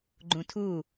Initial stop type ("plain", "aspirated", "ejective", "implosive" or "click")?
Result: click